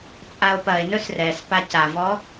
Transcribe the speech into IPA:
t͡sʼ a o̯ p ɐ e̯ n ɵ s r ɛ s p a c a v ɔ

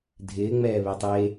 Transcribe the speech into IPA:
dʱ ɪː ŋ͡m ɛː β e tˤ e

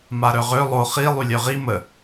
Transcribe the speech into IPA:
m a ɾ œ ʁ ø lˠ o χ i lˠ y lʲ œ ʁ i m ə

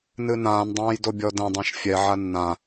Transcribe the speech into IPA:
n ɨ n ãː n dˤ ãː j d o bʲ ɔ d ɛ̃ dˤ ã ʃ fʲ ɛ ʕ a nː ã

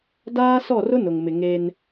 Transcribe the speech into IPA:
d aː˦ s ɔ˦˨ r ʊ˦ n ʊ˨ ŋ m ɪ˨ ŋ e˦ n

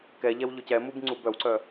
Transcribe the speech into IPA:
k ɛ ʎ ɛ w ʎ ʊ c ɛ m u b ŋ͡ǀ u b œ w ǀ œ

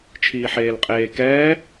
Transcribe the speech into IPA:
t͡ʃʰ iː ħ eː l qʼ eː k ɛː

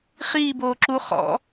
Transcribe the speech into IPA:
χ iː b oː ǁ u χ ɔ̰

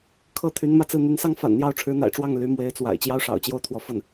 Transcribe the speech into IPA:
kʰ ɤ˥˩ t̪ʰ y˧˥ n m ä˥˧ t͡s ɹ̩˥˩ n̪ y˧˥ n s ɑ˥ ŋ f a̰˨˩ n n̪ j ɑ˥˩ ʊ̯ ʈ͡ʂʰ ɻ̩˧˥ n̪ a̰˨˩ ɪ̯ ʈ͡ʂ w ɑ˥˩ ŋ l y˧˥ m w e˧˥ ɪ̯ t͡s w a̰˨˩ ɪ̯ t͡ɕ j ɑ˥ ʊ̯ ʂ ɑ̰˨˩ ʊ̯ t͡ɕ j o˥˩ ʊ̯ t̪ʰ w ɔ˧˥ f ə˥˩ n

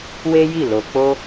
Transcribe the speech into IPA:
w e˦ j i˦˨ l o˨ k͡p o˧

